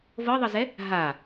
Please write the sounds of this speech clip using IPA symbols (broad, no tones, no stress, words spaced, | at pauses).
vɤðˤɤzɛ | ɦa